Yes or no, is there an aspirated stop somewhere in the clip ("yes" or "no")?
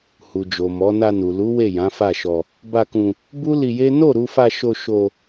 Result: no